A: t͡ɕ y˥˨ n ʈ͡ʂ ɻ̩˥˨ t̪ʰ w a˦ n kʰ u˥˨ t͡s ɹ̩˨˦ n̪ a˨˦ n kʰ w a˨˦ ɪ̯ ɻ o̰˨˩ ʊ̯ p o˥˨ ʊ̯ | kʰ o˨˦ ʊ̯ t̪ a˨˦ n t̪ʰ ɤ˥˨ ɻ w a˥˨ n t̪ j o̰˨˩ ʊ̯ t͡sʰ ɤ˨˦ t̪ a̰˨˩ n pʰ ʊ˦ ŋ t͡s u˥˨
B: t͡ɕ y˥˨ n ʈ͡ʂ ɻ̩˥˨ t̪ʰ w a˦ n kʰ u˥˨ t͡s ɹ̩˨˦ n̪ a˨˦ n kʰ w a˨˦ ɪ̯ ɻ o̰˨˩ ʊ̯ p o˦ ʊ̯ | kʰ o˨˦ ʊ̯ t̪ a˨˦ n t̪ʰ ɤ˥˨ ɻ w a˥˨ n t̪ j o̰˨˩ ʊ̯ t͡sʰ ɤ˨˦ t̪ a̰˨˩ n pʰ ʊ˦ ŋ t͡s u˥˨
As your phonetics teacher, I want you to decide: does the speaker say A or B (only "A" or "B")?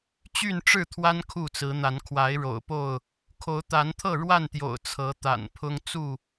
A